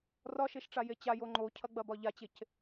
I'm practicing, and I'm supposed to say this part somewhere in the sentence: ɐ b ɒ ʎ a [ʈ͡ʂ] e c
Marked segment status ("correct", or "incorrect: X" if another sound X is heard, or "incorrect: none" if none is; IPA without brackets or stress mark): incorrect: t͡ɕ